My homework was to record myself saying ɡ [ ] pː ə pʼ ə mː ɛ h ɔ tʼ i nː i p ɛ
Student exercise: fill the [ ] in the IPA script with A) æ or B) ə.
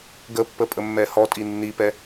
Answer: B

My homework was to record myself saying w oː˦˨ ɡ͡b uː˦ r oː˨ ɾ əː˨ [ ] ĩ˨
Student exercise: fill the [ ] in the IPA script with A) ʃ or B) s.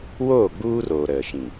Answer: A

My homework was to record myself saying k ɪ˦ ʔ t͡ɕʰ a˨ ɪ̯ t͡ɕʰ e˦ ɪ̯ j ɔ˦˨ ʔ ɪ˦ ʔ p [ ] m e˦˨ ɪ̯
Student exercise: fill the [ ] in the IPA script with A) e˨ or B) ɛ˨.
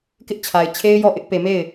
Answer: A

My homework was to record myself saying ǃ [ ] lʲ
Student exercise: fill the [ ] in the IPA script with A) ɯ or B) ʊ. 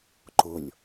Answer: B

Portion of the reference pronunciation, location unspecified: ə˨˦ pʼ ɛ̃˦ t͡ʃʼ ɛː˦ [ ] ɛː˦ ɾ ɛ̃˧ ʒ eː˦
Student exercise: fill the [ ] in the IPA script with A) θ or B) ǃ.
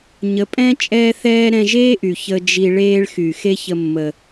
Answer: A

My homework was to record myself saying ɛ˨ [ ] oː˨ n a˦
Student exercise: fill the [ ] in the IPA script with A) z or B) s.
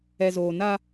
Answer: A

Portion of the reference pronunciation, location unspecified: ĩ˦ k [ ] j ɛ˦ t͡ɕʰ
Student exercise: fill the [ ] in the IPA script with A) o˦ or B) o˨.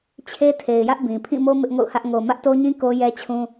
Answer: A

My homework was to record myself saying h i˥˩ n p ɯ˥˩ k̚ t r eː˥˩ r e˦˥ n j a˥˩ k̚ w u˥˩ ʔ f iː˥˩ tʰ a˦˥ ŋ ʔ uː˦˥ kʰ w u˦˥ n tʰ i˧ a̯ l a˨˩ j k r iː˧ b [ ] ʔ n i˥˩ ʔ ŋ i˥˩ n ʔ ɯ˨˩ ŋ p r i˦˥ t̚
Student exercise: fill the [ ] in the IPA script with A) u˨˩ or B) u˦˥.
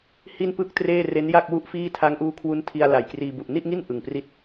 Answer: A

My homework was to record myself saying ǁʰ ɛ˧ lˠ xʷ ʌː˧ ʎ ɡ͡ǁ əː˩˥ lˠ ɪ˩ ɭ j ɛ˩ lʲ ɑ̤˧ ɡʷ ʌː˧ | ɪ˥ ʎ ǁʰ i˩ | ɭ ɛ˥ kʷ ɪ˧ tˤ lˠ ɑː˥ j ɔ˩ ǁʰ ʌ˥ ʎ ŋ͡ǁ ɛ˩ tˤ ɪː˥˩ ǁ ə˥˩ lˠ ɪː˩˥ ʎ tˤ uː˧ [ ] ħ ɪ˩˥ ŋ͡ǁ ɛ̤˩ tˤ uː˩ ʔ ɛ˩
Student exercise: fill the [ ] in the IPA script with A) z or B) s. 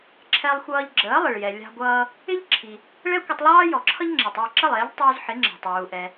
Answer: A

